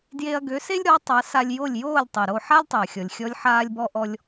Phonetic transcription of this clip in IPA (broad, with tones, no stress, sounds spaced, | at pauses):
d j e˧ ɐ̯ ɡ ø˩˥ s e˥ lʲ ɾ ɔ˩˥ tˤ a˩˥ s a˧ lʲ j o˥˩ lʲ j oː˥˩ lʲ tˤ e˩ ɾ o˥˩ ħ a˥ lʲ tˤ ø˩ ɐ̯ xʲ ɔ˩ lʲ xʲ ɔ˧ lʲ ħ aː˧ lʲ b ɔ˧ ʔ ɔ˧ lʲ